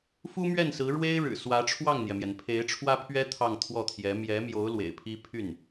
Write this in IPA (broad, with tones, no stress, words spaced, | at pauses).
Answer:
fu˥mɥɛ˥˩nsɹ̩˧˥ ɻwe˥ɪ̯ɻɻ̩˨˩ swä˧˥ʈ͡ʂʰwɑ˥˩ŋn̪jɛ˩mjɛ˩n pʰe˧˥ɪ̯ʈ͡ʂʰwä˥pʰɥɛ˥ t̪ʰɑ˥˧ŋt̪ʰwɔ˥˩t̪ʰjɛ˧˥ mjɛ˧˥mjo˧˥ʊ̯ lwḛ˨˩ɪ̯pʰi˥ pʰy˥˩n